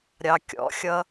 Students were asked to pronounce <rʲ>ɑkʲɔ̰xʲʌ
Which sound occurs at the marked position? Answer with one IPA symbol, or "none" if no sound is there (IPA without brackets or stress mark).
ɾʲ